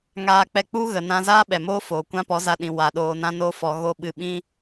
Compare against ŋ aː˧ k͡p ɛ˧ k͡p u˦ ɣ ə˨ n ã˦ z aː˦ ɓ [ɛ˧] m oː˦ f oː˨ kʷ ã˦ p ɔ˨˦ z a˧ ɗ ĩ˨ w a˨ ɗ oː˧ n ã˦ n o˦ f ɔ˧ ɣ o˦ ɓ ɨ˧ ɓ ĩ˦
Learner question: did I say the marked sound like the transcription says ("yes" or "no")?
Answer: no